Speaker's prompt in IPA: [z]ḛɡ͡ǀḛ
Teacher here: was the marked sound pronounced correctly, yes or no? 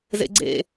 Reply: yes